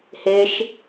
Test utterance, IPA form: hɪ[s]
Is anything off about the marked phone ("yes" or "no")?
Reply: yes